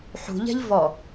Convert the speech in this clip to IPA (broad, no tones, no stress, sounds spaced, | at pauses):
ħ ṳ ʎ ɛ̤ ʎ v ɔ